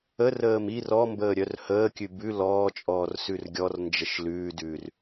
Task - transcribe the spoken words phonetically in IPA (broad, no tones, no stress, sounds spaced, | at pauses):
ə r əː m i r ɔ m b əː ɾʲ œ r h əː kʲ ʉ b ʉ l ɔː t͡ʃʼ ɔː r s ʉ r ɡʲ ɔ r n d͡ʒ ə ʃ l ʉː d ʉː r